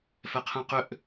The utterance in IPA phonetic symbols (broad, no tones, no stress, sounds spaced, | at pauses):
f ɛ qʰ ɛ̃ q ʏ ʔ